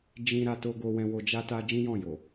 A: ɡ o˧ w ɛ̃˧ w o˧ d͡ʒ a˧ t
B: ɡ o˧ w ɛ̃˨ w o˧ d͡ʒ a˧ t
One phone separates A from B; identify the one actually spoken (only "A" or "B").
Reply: A